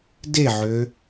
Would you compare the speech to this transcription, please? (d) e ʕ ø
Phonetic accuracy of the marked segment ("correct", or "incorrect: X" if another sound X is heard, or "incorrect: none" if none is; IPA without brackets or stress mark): correct